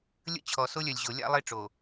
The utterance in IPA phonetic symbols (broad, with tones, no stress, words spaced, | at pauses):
lʲə̰˦ t͡ɕʰɔ˨so˦lʲœ˨lʲʑo˨ lʲa̰˦lˠe˦ʈ͡ʂo˨